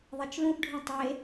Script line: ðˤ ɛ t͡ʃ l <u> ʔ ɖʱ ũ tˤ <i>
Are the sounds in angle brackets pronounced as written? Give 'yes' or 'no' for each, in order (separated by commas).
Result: no, no